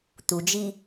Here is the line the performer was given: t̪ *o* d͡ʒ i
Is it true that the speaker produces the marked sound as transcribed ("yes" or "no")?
no